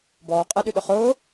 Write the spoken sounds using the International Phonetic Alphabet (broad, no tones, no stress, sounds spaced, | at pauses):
b ɔː qʼ ɛ ɗ y ɗ ʊ χ ʊː